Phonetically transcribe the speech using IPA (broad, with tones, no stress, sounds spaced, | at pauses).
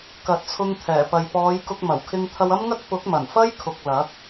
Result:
k ɐ˨ t̚ t͡sʰ ʊ˧ ŋ t̪ʰ ɛː˨˩ p ɐ˨ j p ɔː˨˧ j k ʊ˧ k̚ m ɐ˨˩ w kʰ ɪ˧ ŋ t̪ʰ ɐ˧ w ɐ˥ m ŋ ɐ˥ k̚ p ʊ˨˥ k̚ m ɐ˨˩ n f ɐ˥ j kʰ ʊ˨ k̚ l ɐ˨˥ k̚